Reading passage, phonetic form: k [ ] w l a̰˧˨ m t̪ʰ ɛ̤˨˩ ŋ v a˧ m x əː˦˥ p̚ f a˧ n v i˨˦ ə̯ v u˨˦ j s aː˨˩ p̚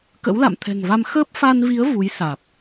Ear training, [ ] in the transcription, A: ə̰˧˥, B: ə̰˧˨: A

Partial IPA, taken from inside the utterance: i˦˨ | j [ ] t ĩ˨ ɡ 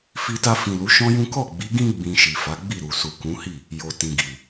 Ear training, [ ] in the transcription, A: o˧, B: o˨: B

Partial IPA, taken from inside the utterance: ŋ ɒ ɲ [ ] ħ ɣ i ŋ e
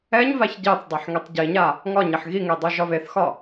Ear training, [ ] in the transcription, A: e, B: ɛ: A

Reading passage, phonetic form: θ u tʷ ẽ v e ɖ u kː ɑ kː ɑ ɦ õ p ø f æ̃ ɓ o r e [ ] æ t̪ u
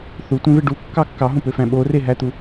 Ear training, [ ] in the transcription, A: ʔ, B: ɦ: B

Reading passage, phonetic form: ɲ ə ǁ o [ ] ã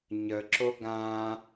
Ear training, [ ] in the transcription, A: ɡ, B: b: A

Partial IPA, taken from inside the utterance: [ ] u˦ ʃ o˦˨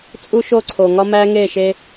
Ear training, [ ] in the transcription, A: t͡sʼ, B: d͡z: A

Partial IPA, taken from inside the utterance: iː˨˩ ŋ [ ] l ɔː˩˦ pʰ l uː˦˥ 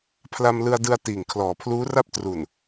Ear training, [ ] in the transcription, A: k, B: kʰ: B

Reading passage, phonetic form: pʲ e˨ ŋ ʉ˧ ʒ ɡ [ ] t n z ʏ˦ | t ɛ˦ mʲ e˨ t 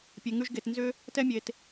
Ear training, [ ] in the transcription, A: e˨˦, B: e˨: B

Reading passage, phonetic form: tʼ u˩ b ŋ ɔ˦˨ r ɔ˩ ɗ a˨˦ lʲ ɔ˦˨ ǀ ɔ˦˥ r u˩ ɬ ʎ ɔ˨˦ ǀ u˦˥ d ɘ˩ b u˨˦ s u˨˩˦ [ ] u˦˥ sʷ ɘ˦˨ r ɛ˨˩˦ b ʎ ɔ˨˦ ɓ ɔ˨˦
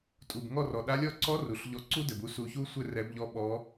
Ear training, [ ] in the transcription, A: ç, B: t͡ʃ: A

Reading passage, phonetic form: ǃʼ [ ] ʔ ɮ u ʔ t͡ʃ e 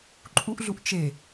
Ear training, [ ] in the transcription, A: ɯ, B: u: B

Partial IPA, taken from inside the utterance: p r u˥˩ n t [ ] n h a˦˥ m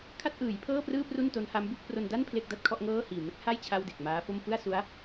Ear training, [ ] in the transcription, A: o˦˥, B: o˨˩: A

